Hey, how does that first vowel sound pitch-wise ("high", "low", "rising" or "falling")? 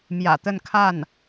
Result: low